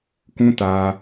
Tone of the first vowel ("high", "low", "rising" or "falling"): high